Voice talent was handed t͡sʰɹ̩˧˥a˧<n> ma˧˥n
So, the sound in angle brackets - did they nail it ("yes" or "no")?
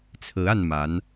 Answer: yes